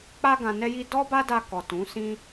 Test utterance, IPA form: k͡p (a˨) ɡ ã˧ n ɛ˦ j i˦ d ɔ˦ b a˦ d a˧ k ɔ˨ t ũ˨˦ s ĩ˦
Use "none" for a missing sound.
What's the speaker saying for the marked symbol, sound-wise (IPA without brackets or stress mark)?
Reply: a˦